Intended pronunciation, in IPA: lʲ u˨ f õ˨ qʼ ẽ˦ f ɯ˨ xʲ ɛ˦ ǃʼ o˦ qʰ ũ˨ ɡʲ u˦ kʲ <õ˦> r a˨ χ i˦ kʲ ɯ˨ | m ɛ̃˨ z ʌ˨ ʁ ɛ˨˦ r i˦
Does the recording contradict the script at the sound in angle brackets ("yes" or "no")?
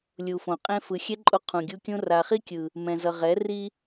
yes